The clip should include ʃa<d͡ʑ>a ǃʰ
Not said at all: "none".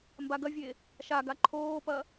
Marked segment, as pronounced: ɡ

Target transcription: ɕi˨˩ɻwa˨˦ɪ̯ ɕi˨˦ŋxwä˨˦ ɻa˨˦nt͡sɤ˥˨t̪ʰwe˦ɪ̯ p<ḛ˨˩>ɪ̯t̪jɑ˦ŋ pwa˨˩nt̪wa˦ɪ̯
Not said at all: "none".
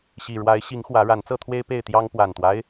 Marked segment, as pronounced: e˥˨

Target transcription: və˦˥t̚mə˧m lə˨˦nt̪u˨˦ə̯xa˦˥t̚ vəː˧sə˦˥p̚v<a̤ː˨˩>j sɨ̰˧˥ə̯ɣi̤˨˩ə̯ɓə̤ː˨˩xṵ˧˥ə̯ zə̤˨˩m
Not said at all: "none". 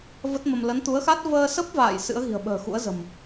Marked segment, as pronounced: a̰ː˧˨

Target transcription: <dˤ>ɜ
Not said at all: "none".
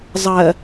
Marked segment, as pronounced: zˤ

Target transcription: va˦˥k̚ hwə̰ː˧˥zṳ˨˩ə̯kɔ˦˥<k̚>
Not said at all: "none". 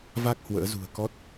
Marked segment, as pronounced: t̚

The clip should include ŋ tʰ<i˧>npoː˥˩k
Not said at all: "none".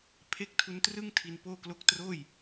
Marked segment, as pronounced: i˧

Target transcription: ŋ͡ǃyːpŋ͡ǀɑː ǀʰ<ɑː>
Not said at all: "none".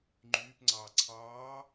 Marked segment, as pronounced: ɑː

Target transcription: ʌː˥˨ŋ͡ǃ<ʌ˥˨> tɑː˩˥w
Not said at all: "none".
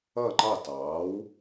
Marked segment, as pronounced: ɑ˥˨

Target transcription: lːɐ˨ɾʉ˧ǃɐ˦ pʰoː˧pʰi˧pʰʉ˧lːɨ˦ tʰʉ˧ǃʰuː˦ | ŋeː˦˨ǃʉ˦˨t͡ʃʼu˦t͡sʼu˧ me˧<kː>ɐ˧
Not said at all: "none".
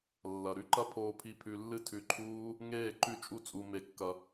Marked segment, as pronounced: kː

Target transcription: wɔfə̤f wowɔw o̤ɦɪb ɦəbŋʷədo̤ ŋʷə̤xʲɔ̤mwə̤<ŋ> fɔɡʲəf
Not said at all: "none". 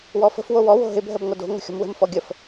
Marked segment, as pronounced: m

